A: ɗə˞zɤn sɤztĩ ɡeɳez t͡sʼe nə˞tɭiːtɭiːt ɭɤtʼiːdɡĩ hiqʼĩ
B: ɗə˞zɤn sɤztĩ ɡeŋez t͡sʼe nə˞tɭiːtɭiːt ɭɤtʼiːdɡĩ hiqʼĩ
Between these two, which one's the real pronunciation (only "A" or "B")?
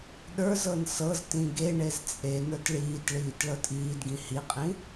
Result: A